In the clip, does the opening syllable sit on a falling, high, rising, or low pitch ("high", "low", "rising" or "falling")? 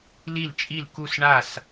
falling